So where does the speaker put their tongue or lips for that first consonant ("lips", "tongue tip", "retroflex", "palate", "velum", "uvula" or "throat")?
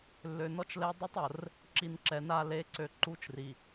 tongue tip